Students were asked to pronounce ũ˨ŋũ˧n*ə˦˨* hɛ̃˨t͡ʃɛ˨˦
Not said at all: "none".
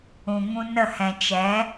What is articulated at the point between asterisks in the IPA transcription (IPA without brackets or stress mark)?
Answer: ə˦˨